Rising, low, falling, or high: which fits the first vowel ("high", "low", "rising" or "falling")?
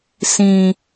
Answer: low